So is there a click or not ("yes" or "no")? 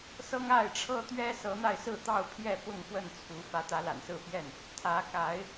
no